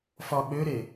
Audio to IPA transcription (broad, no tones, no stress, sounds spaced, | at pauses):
f ɒ ɓ ø ɾ e